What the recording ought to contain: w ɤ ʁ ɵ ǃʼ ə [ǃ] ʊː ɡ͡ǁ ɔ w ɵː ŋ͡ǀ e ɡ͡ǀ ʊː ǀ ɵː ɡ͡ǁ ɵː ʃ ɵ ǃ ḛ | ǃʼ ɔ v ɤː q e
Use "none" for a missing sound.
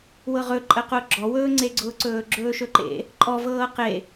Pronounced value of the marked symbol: q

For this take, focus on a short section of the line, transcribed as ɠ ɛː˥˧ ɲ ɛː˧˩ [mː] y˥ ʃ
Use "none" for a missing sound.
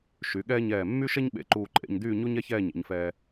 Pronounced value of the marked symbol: mː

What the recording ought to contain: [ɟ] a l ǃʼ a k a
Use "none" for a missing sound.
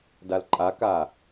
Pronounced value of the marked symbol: d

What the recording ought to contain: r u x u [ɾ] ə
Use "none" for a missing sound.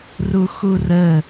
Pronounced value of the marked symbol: r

